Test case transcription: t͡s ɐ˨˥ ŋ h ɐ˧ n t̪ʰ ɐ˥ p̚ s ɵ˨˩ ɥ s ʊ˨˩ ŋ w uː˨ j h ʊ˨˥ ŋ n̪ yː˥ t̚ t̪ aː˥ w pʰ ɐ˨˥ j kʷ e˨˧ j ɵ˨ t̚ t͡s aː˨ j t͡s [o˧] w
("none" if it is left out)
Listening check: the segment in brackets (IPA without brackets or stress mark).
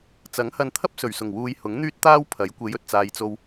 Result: o˧